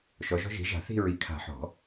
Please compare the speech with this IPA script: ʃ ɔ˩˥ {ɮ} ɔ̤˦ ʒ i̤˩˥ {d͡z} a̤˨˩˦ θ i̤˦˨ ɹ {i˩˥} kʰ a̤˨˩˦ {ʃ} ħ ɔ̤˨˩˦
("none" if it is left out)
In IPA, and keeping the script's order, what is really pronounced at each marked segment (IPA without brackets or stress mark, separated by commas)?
ʒ, ʒ, i˩˥, none